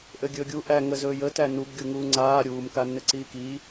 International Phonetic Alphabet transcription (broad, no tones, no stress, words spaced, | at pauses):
ʔɘɡʲɵːɡʲu ʔæ ŋə zɵːjə tænub ɡʲuŋuːŋ͡ǀaː ɾʲuːm kanːɘǀiːki